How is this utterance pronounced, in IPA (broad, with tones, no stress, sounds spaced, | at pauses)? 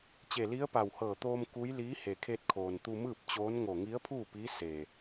t͡ɕ e˧˩ l i˧˥ ə̯ p a˧˩ w h ɤː˧˩ t̪ oː˧ m k u˧˥ j l iː˧˥ h e˩ kʰ e˧ t̚ kʰ oː˩ n t̪ u˧ m ɯː˥˨ p̚ t͡ɕ oː˧˥ n ŋ o˧˩ ŋ i˧˥ ə̯ pʰ uː˥˨ p iː˧˥ s e˩